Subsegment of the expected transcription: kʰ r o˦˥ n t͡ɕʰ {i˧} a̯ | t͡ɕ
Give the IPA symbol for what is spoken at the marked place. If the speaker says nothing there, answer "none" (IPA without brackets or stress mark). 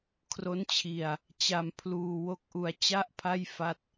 i˧